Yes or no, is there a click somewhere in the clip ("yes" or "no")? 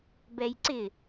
yes